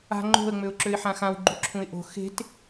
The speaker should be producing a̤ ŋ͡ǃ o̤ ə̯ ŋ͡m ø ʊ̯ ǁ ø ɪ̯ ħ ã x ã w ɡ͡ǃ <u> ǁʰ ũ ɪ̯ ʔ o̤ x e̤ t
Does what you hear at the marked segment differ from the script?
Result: no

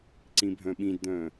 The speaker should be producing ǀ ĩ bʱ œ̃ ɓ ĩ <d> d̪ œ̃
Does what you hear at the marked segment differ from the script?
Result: no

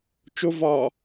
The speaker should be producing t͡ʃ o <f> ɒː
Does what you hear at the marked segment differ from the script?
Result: yes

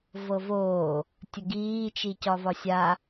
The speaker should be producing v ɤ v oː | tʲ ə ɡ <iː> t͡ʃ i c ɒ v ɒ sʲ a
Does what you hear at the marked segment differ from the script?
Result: no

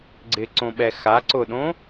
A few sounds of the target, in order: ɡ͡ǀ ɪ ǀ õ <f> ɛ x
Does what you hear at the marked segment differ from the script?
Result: yes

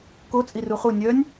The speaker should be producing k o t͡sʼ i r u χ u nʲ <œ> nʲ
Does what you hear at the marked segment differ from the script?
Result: no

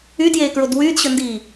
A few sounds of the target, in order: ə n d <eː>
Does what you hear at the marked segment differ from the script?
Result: yes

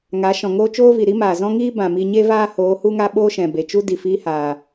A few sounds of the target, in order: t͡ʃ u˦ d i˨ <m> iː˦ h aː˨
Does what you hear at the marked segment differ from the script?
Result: yes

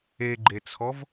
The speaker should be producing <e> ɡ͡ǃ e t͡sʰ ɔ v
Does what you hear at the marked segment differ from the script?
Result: no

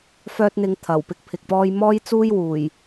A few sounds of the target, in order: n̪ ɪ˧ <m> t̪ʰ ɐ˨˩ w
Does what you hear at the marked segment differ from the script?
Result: yes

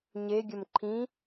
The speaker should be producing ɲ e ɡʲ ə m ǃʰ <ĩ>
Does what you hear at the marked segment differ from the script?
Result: no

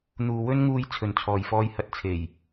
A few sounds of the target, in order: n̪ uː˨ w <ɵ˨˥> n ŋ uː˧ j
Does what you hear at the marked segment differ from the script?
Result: yes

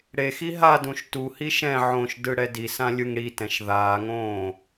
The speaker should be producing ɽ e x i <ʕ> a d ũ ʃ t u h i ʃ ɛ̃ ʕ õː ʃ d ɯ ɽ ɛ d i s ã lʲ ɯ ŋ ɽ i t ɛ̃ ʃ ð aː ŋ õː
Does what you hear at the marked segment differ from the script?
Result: yes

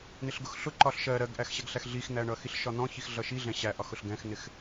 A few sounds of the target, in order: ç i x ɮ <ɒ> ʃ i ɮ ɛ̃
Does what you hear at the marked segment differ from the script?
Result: yes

